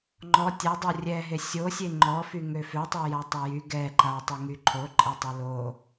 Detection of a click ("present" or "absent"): present